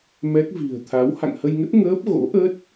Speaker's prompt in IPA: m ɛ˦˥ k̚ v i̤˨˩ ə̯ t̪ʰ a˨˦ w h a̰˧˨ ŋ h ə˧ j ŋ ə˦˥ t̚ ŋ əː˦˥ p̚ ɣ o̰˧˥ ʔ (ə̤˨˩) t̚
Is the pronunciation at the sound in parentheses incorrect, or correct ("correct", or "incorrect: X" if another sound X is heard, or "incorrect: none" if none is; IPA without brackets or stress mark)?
incorrect: ə˦˥